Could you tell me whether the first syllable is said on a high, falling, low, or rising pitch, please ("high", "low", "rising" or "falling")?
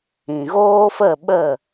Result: low